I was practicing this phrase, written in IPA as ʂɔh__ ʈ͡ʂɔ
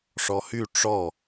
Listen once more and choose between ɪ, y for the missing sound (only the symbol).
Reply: y